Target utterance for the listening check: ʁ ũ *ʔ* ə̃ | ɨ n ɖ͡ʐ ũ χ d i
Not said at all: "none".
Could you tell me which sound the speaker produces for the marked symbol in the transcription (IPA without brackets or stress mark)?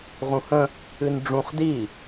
h